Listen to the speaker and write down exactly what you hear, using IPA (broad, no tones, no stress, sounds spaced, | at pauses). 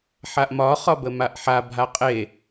ħ a ʔ m ɒ χ ɒ b ə m a ʔ ħ a bʱ a qʼ e